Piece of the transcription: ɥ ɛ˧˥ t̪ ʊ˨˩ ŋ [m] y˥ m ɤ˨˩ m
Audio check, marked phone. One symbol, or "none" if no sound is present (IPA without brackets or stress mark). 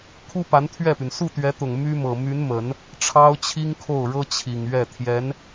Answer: m